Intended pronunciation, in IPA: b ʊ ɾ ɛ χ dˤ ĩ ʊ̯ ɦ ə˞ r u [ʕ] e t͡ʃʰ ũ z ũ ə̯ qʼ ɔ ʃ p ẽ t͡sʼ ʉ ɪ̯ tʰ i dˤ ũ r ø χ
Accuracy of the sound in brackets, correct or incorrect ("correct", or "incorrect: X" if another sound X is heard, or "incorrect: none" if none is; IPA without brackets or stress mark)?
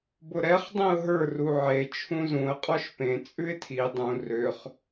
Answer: correct